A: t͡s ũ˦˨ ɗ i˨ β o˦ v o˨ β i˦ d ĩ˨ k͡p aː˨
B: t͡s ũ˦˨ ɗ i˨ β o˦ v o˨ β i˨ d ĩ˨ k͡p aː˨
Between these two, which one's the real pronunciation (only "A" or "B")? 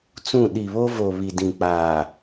B